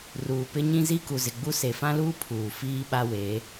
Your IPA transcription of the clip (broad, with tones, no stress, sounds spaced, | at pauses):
r uː˨ p ɪ˦ ɲ ĩ˦ z i˦ k u˨ z ɪ˨ ɡ͡b u˦ s e˨ f ã˦ l uː˦ pʰ uː˨ f iː˦ ɓ a˦ w eː˨˦